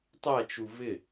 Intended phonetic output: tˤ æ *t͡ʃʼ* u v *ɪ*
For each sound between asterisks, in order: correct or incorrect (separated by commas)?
incorrect, correct